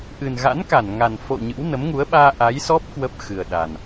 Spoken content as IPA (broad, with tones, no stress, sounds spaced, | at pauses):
ʔ ɨ˨˩ n ɣ a̰˧˥ n k a˧˩ n ŋ a˨˩ n f o̰˧˨ ɲ ɨ̰˧˥ w n ə˨˦ m ŋ u˨˦ ə̯ ɓ aː˧ ʔ a˨˦ j s ɔ˦˥ p̚ k w ə˦˥ p̚ x ɨ˨˩ ə̯ ɗ a˨˩ n